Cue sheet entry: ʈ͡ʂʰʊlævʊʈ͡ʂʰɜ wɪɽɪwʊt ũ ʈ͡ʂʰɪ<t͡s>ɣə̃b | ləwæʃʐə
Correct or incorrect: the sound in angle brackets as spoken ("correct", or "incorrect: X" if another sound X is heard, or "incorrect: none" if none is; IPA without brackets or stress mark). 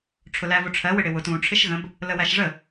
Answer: incorrect: ʃ